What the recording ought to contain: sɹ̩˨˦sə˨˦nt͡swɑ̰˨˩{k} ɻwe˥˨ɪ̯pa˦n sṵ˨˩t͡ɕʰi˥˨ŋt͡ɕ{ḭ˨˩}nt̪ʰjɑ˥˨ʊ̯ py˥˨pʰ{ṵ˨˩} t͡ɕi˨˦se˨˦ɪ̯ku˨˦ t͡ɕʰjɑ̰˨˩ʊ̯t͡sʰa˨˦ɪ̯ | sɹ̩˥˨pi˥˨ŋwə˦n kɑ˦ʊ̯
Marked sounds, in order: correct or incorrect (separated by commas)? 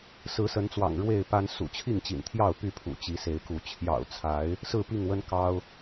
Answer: incorrect, correct, correct